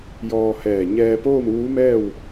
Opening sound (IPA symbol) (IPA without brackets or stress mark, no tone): j